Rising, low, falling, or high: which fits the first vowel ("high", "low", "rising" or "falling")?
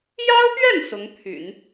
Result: high